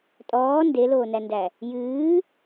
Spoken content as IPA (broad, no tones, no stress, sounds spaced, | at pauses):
tʼ ɔː n d e l oː n æ n d æ | j ɨː